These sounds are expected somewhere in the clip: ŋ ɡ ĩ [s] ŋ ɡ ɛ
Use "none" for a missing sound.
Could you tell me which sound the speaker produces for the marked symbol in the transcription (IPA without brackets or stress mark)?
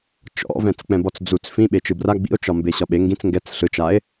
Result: t͡s